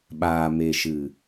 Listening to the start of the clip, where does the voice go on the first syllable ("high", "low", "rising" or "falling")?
low